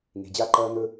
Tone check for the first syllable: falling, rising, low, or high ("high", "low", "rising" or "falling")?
low